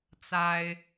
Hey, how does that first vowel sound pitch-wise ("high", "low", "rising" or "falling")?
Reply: high